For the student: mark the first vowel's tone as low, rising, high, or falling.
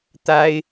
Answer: high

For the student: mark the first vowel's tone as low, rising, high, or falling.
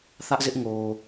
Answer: high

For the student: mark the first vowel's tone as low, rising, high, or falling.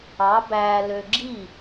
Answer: rising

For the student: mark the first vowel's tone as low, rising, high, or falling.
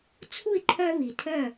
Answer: falling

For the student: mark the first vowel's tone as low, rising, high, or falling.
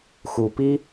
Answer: low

